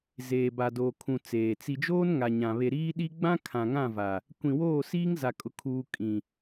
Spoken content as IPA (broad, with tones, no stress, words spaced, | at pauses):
zeː˨ba˨doː˨ kʰũ˨ t͡seː˨ t͡si˨d͡ʒoː˦n ŋa˨ɲã˨ βe˨ɾiː˦ɗi˦ ɡ͡bã˦ kʰã˨ ŋã˦˨va˨ | kʷĩ˨woː˦˨ siː˦ŋza˨kʼʊ˨ kʰuː˨ kʼĩ˨